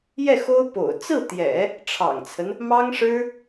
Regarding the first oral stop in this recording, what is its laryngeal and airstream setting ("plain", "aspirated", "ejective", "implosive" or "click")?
plain